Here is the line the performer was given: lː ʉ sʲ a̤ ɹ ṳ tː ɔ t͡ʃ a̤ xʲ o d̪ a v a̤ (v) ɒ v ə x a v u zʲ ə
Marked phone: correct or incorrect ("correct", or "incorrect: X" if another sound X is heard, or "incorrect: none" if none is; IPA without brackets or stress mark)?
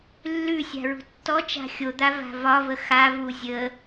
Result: correct